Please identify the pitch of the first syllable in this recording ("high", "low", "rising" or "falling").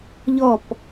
falling